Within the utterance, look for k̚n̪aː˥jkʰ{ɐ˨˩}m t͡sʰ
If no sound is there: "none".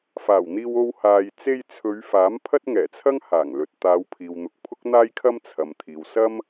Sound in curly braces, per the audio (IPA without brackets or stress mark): ɐ˥